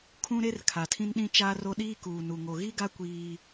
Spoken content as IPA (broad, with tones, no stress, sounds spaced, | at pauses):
kʰ ũ˦ ɾ e˦ r kʰ a˨ tʰ ĩ˦ n ɗ ĩ˦ t͡ʃ aː˦ r o˦ ɗ iː˦ k uː˨ n u˨ ŋ o˨ ɣ i˦ ɡ a˦ kʷ iː˦